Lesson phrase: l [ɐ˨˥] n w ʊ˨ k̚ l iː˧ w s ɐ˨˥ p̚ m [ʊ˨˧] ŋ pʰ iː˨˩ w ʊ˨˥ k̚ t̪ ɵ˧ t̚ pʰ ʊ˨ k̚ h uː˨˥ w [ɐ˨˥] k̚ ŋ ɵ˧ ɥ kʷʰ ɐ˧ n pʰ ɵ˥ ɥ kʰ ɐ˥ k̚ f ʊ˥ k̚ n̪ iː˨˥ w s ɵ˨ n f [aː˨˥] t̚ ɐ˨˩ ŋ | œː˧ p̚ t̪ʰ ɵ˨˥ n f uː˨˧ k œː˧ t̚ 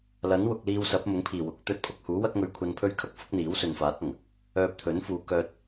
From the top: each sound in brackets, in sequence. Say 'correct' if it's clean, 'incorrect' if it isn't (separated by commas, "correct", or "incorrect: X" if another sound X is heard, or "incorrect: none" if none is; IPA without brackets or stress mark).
correct, incorrect: ʊ˨˥, incorrect: ɐ˥, correct